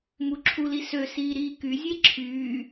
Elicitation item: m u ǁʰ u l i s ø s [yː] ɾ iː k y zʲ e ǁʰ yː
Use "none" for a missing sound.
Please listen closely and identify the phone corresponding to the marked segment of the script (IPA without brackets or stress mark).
iː